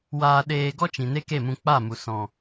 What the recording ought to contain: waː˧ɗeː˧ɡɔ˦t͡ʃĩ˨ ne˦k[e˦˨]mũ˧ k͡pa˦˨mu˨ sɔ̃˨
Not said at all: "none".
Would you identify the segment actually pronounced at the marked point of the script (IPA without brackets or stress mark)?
e˦˨